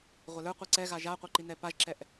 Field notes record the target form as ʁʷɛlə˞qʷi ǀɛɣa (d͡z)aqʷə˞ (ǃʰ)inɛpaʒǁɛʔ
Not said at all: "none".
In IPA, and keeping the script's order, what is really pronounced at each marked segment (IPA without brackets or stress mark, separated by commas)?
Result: ʒ, ǃ